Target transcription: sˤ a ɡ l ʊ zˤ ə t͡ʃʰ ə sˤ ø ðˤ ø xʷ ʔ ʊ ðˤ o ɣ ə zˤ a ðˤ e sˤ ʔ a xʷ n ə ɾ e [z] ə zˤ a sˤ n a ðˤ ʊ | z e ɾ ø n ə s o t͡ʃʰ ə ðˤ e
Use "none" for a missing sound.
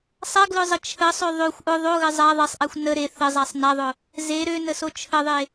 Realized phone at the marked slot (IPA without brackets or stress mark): θ